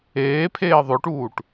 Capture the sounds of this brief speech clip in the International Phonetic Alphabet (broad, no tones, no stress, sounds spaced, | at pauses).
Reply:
eː pʰ eː ðˤ o ʈ uː ʈ